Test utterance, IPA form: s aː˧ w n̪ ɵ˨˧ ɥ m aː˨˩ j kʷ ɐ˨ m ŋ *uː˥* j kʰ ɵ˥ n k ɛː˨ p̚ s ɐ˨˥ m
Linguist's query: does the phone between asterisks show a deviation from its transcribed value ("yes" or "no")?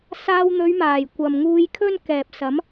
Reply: yes